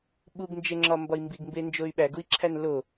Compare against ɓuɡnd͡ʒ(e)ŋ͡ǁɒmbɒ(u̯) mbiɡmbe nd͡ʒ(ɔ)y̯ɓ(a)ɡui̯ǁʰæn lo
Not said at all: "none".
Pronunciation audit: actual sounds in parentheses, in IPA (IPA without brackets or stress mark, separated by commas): e, i̯, o, æ